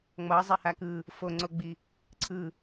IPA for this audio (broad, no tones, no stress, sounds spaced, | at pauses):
ŋ͡m ʌ zˤ ɛ h a k ɯ | f o ŋ͡ǀ o ɡ͡b i | ǀʰ ɯ